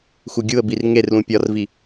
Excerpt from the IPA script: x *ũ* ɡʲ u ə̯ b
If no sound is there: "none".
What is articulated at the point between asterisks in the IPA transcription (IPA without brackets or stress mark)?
u